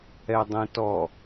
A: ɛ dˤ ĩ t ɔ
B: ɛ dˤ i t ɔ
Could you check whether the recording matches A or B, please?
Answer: A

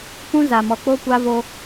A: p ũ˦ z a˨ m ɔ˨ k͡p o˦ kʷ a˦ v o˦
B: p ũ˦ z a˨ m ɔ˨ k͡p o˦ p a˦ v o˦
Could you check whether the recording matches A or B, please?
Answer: A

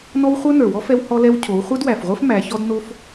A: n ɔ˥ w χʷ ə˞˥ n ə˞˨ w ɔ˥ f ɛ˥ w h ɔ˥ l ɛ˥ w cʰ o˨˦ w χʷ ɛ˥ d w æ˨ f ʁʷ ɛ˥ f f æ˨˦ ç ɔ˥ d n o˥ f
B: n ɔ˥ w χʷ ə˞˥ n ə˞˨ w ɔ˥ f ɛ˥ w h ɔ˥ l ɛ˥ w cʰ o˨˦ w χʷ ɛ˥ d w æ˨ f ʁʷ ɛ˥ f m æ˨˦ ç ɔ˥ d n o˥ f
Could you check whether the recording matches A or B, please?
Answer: B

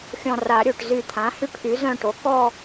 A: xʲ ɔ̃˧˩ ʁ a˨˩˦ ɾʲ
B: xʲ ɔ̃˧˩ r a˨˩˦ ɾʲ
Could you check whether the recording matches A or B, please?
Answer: B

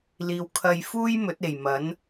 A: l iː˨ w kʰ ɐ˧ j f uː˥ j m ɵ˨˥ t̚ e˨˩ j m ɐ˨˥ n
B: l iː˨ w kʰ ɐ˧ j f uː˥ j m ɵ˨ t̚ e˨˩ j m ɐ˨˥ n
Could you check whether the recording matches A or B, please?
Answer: A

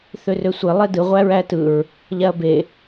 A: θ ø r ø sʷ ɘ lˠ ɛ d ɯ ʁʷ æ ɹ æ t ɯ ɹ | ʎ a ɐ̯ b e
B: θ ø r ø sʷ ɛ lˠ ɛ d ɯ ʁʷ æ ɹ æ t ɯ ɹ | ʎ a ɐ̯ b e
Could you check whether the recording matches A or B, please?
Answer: A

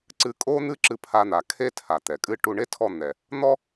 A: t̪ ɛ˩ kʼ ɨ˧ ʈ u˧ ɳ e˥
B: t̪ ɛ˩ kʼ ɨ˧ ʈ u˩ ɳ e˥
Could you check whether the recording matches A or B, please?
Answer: A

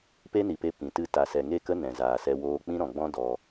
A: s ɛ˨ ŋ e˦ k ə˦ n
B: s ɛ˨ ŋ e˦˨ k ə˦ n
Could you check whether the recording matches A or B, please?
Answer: B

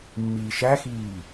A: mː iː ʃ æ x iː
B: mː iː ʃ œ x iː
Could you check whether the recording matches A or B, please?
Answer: A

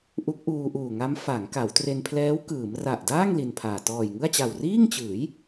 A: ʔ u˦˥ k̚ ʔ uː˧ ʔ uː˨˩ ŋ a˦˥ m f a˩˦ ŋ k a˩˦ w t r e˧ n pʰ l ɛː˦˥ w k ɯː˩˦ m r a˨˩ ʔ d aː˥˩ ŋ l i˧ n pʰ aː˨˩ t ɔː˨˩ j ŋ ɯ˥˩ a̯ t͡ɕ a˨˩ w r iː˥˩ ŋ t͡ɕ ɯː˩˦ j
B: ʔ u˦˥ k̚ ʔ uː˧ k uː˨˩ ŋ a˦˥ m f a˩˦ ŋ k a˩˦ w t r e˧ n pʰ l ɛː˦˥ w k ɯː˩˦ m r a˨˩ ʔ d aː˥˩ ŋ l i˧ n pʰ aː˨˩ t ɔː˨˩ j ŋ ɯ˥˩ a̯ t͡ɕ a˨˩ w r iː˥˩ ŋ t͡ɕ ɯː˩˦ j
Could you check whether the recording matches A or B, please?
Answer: A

